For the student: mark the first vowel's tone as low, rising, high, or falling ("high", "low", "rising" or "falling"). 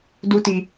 high